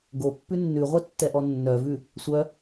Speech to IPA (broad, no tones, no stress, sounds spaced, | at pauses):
ɡ o pː ʉ nː ʉ ʁʷ ɛ tː ɛ ʔ ɔ nː œ v ʉ | sʷ œ